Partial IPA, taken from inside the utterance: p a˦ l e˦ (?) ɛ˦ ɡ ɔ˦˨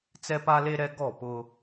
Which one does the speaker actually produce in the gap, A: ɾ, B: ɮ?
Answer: A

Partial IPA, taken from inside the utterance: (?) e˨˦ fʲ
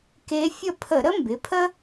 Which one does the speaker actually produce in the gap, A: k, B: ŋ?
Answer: A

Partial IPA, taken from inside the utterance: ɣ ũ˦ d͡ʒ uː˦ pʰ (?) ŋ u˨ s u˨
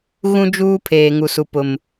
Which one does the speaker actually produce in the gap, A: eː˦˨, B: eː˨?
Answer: B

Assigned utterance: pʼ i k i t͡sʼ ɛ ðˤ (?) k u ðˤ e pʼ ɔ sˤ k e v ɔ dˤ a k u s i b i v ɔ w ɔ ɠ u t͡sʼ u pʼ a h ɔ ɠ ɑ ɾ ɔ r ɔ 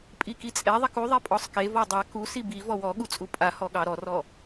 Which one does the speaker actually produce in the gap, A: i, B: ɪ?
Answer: A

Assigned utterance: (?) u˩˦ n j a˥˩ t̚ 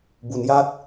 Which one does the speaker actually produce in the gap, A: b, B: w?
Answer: A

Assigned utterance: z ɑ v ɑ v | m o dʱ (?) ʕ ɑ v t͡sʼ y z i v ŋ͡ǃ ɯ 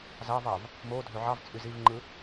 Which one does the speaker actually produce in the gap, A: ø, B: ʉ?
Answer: A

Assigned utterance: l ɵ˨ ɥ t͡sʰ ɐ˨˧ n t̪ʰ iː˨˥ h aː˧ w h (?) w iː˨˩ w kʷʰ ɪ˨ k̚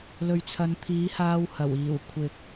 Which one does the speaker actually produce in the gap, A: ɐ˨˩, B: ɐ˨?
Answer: A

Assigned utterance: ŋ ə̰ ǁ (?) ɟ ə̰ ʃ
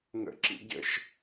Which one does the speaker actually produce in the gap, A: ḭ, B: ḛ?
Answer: A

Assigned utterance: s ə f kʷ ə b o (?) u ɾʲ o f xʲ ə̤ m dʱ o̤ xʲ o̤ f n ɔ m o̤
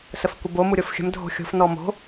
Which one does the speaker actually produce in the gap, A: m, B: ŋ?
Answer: A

